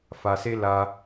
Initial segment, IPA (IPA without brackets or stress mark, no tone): f